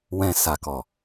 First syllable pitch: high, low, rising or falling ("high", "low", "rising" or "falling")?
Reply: low